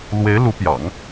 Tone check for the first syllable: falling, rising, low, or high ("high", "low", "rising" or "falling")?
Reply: rising